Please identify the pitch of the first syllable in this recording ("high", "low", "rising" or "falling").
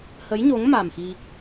rising